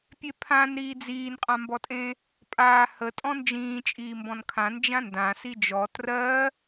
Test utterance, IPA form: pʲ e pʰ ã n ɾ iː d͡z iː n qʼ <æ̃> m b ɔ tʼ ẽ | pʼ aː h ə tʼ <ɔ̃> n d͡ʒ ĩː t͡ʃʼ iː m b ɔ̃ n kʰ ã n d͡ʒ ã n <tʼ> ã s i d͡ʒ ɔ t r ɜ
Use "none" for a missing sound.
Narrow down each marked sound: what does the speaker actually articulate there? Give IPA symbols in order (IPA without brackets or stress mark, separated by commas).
ã, ɔ̃, d